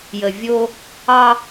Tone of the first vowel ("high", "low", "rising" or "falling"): low